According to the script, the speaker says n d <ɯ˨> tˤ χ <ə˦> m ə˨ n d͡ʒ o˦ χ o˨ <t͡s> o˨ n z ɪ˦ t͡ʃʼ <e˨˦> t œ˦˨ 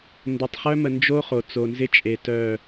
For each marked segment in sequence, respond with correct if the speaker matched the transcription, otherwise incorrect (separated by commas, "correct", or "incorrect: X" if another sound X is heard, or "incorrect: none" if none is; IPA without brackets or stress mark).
incorrect: ə˨, incorrect: œ˦, correct, incorrect: e˨